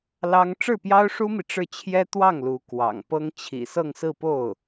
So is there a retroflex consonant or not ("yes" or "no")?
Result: yes